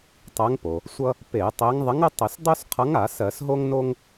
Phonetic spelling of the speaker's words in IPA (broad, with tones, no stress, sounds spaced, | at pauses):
tˤ ɜ˨˥ ŋ p o˩ | sʷ ʌ˦ | p e˧˩˧ tˤ e˨˥ ŋ ðˤ ɪ˨˥ ŋ ə˦ tˤ ɪ˧˩˧ s dˤ o˦ s qʰ ʌ˨˥ ŋ a˧˩˧ s ɜ˧˩˧ s ɦ o˦ ŋ n o˦ ŋ